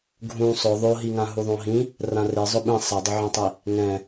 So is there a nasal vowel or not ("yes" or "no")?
yes